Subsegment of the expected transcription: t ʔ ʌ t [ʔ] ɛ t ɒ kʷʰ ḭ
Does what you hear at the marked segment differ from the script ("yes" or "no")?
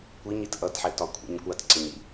yes